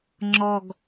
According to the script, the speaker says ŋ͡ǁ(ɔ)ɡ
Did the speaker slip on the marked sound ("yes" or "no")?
no